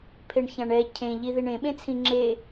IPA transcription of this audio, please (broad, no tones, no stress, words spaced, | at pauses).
pʰeɳçãɳɛ cʰẽʎi ðiɳẽɓẽt͡sʰĩ ŋ͡ǁe